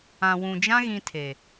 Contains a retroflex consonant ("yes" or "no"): no